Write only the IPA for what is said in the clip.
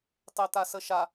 tˤet̪asəʃa

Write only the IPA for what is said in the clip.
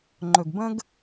ŋ͡ǃɵ˨ɡbə̃˦ɡ

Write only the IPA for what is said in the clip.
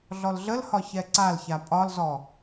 ɮɔlɮəlhɒ çɛǀalça pʼɒlzɔ

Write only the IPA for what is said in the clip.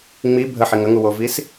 ŋ͡mi bʱəħiŋ əŋuwovis

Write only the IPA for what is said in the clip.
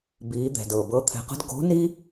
biː˩˧d̪ɛ̤˩dɤ˩ bɤ˧˥t̪ʰɛ̤˧qə̤˥d ɡo̤˧˥ni˥

